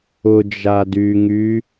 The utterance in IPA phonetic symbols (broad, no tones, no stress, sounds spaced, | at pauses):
ʊ d͡ʒ a d y ŋ y